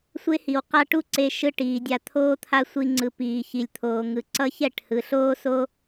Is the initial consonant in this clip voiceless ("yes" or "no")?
yes